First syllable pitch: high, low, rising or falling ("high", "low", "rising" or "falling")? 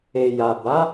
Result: low